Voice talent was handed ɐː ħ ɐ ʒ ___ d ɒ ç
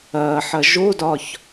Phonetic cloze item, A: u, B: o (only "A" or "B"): B